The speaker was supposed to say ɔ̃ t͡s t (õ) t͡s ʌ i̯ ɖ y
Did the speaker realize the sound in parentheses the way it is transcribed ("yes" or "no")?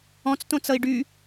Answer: yes